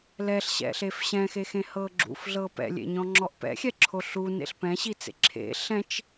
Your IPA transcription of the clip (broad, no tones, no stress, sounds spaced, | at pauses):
l ɛ ɬ ɕ ɛ̰ ɬ e f ɕ ɛ̃ x e x ẽ h ɤ ɡ͡ǁ ṵ f ɮ ɤ p ɛ̰ lʲ ḛ ɲ ɔ̃ ŋ͡ǁ ɔ ʔ p ɛ̰ xʲ ɛ ǁʰ o ɬ u n ḛ ɬ p ɛ̃ ɕ i t͡s ḛ ǁʰ ḛ ɬ ɛ̃ t͡ʃ